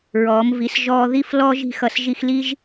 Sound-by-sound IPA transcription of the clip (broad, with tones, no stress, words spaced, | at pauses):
ɹɔː˩˧mvi˩˧s ʒɔː˧ ði˥˧flɔː˥ʒ i̤˥˧xʌ˧s ʒi˧xli˥ʒ